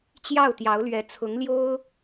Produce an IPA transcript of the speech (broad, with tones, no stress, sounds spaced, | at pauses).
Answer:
t͡ɕ j ɑ˥˩ ʊ̯ t̪ j ɑ˧˥ ʊ̯ l ɥ ɛ˧˥ t͡sʰ ʊ˧˥ ŋ l j o˥ ʊ̯